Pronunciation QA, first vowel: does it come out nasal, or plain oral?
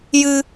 oral